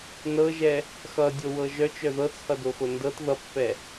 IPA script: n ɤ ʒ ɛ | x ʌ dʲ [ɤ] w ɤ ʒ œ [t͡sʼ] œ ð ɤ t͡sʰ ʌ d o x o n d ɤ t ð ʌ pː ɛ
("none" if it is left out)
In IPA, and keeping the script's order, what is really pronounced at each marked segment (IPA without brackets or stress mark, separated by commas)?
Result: o, t͡ʃ